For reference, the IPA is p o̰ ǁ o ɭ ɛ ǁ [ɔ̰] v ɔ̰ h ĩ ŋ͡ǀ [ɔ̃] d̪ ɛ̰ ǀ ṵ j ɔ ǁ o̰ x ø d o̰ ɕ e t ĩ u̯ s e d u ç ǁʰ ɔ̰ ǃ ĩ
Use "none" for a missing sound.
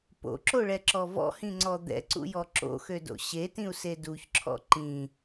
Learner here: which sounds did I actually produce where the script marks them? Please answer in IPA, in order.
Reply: ɔ, ɔ

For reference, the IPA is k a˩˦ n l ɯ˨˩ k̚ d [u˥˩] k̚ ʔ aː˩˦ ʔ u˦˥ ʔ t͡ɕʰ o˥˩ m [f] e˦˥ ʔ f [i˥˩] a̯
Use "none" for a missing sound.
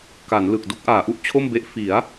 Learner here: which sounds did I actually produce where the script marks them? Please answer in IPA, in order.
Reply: u˥˩, b, i˩˦

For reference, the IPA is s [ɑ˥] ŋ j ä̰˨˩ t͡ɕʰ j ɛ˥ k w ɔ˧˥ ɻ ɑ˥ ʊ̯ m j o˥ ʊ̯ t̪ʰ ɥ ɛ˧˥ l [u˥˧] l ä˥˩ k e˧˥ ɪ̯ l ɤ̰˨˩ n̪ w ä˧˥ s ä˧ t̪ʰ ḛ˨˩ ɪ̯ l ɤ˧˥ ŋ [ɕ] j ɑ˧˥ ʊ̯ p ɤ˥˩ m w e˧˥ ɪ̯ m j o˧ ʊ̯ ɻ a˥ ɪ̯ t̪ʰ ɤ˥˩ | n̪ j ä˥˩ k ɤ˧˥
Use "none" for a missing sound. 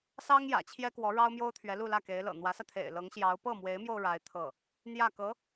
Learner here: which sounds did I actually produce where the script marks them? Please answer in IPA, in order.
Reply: ɑ˥, u˥˧, ɕ

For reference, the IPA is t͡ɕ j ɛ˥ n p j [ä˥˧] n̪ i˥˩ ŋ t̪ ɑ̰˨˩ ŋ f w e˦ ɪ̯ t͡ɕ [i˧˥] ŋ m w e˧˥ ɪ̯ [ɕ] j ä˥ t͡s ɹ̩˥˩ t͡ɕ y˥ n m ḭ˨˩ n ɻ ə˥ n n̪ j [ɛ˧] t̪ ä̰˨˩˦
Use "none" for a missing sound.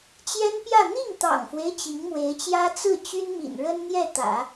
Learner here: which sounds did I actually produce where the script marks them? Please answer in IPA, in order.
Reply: ä˥˧, i˧˥, t͡ɕ, ɛ˥˩

